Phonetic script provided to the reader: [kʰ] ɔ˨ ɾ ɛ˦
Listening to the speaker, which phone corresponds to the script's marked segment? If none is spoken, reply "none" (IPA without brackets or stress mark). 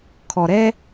kʰ